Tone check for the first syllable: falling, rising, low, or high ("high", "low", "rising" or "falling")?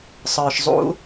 low